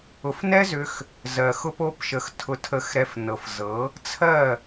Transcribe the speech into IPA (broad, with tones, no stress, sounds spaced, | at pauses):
ʊ˨ f n ɛ˦ z ʏ˧ x | z ɜ˨ x ʊ˦ p o˦ p ʃ ə˧ x tʰ ʊ˧ tʰ ə˧ x ɾ ɛ˧ f n ɤ˨ f z ɤ˨˦ | t͡sʰ ɜ˦˨